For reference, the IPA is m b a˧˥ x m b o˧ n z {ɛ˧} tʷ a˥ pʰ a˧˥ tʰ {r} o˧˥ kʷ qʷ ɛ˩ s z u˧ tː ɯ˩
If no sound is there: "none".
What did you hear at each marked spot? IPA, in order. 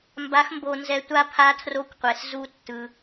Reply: ɛ˧, r

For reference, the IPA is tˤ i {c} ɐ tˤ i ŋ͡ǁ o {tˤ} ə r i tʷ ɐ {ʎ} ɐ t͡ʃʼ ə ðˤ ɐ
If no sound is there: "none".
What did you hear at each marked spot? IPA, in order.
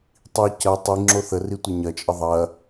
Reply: c, θ, ɲ

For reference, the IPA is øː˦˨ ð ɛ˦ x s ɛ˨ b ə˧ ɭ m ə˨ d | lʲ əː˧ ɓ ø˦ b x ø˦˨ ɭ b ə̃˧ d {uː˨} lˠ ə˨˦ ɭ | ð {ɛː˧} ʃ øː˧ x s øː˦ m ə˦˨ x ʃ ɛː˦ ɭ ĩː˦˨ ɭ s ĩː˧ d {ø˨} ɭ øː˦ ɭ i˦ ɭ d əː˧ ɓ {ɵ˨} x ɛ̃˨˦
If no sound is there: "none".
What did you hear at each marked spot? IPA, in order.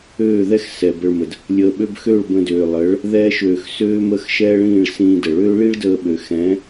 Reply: øː˨, ɛː˦, ə˨, ø˨

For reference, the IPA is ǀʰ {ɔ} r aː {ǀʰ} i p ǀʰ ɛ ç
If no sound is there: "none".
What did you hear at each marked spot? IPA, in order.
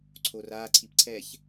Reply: o, ǀʰ

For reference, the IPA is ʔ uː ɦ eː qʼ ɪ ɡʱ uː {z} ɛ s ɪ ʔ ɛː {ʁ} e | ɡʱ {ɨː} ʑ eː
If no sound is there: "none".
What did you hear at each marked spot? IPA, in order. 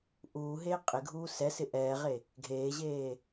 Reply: s, ʁ, eː

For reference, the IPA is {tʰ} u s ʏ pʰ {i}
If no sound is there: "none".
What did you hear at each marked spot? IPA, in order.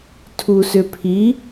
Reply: tʰ, i

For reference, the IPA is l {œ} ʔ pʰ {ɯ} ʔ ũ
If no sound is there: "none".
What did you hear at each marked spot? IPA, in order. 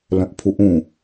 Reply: œ̃, u

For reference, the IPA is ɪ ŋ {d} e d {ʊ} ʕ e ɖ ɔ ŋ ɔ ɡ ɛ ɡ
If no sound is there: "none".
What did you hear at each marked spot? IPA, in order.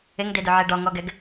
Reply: d, ʊ

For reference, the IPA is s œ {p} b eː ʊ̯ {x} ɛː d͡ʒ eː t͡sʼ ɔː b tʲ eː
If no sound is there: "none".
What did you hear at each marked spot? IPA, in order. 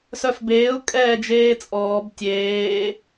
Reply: f, kʼ

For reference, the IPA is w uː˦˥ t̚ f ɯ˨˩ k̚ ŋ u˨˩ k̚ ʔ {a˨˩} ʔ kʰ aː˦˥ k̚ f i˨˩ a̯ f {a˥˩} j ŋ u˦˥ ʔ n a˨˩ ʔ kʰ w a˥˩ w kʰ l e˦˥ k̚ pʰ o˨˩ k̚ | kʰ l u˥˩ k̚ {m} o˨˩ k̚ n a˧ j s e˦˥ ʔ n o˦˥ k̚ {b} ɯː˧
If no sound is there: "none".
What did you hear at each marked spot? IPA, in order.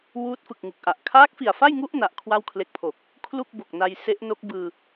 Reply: a˨˩, a˥˩, b, b

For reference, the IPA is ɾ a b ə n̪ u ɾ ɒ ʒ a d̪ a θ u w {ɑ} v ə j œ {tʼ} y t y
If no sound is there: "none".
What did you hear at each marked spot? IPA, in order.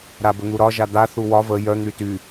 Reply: ɒ, n̪

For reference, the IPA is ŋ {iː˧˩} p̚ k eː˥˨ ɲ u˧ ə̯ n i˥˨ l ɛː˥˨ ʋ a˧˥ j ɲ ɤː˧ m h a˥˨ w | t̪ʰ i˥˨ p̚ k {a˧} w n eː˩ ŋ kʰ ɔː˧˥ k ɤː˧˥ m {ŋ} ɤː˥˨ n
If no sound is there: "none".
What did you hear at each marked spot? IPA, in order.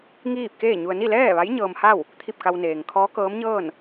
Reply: iː˥˨, a˧, ɲ

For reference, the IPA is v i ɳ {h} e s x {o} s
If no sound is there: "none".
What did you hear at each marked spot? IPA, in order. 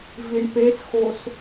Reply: p, o

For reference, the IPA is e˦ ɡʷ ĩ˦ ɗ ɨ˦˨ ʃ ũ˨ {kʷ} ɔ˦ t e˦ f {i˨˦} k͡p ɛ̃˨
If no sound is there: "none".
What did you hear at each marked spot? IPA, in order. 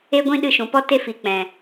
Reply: p, i˨˦

